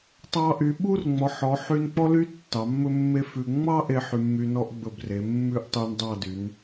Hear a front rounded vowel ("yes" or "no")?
yes